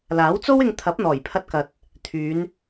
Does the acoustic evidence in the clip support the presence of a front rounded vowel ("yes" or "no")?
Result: yes